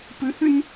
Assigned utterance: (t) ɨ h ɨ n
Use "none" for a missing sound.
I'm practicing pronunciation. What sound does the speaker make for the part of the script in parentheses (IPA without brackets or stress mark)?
p